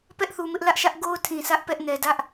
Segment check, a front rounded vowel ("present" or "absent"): absent